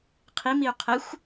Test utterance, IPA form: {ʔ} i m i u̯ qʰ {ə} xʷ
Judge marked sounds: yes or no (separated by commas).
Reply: no, yes